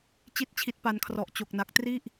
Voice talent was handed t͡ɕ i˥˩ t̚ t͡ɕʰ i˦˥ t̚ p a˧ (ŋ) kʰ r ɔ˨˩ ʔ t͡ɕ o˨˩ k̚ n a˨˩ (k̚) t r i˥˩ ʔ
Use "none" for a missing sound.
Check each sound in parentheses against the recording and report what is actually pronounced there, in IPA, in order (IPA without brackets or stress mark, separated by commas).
n, k̚